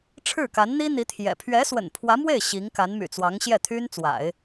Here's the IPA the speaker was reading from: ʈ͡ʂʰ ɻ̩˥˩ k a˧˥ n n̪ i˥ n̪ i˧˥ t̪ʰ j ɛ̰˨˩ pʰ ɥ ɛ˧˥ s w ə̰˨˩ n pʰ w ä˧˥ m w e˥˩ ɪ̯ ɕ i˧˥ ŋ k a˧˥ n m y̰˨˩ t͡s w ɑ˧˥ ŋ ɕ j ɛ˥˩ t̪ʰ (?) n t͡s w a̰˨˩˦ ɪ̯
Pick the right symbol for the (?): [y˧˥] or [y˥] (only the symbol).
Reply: y˥